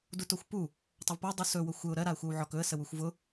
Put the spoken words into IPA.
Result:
d u t o xʷ p u | tˤ ɵ v p o dˤ u s ɵ w ʊ xʷ ɘ ʊ̯ ɾ ɜ ɾ a ə̯ xʷ ɜ w ʕ ɔ k ɵ ə̯ s ə w u xʷ v ʊ

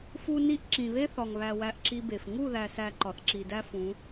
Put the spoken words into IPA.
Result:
f u˦ n i˦ ʔ ǁ ĩ˨ β e˦ θ ɒ˨ ŋ β æ˨ w æ˦ ʔ ǁ i˦ b e˨ f ŋ u˦˨ ð æ˨ s æ˨ ǃ ɒ˨ θ ǁ i˨ d æ˦ f ũ˨˦

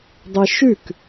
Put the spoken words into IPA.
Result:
dˤ e ʃ ʉ k

